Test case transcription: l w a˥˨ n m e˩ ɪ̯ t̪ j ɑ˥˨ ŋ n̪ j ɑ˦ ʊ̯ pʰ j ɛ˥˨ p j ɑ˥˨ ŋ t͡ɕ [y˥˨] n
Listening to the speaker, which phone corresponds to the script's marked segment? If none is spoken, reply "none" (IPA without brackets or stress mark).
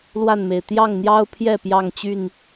y˥˨